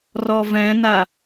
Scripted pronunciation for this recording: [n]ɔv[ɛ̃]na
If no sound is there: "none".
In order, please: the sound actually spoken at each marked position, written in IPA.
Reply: r, ɛ̃

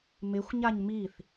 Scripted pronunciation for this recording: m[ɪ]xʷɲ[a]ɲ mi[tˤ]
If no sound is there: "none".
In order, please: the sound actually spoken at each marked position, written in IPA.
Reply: ɪ, a, θ

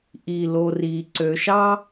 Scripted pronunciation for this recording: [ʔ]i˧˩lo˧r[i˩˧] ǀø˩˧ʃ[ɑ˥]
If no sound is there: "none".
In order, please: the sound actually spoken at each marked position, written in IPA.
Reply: ʔ, i˩˧, ɑ˥

